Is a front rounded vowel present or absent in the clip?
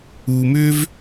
present